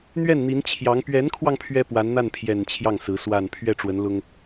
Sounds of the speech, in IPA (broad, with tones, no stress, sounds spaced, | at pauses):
n̪ ɥ ɛ˥˩ n n̪ i˧˥ n t͡ɕʰ j ɑ˧˥ ŋ p ɥ ɛ˧˥ n kʰ w ɑ˧ ŋ pʰ ɥ ɛ˥ p w a˧˥ n n̪ a˥˩ n pʰ j ɛ˨˩ n t͡ɕʰ j ɑ˥˩ ŋ s ɹ̩˧˥ s w a˥˧ n pʰ ɥ ɛ˥˩ ʈ͡ʂ w ə˧˥ n l ʊ˥ ŋ